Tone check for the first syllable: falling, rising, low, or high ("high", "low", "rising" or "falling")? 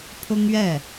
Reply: high